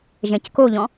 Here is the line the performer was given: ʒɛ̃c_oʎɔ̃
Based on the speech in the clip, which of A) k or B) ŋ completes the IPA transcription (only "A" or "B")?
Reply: A